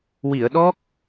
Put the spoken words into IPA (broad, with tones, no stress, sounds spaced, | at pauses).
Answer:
w i˨˩˨ ə̯ ɗ ɔ˦˥ k̚